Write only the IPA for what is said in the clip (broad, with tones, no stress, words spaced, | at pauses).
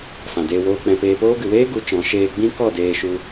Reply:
fã˨deː˧woː˧ k͡pɛ̃˨ peː˧poː˦ ɡɨ˨weː˦ɡu˨˦ t͡ʃɔ̃˨˦ ʃeː˧ɡ͡bĩ˦ kɔ˦˨deː˧ ʃu˧